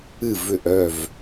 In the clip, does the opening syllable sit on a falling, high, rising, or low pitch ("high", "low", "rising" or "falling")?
falling